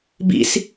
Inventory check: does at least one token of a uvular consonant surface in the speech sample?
no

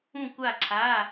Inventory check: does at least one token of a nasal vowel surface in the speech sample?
yes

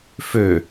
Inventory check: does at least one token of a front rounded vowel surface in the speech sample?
yes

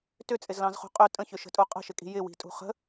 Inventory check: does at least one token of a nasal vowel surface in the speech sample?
yes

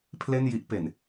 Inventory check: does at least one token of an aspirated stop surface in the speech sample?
yes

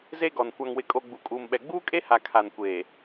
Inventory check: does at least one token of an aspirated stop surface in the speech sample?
yes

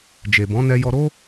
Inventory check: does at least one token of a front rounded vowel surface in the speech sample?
no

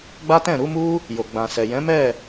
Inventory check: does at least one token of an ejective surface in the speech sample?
no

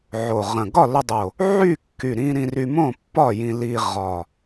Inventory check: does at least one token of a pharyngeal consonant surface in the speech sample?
yes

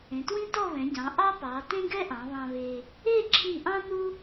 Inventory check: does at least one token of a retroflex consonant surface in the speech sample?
no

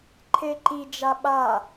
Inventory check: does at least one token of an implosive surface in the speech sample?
yes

